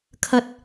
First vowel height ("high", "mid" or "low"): low